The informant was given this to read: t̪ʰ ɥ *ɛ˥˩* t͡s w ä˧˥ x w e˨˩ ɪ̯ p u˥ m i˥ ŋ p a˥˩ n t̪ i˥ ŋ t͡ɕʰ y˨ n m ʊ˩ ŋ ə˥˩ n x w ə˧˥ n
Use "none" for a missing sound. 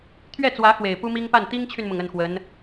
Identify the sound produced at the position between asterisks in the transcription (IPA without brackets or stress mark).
ɛ˥˩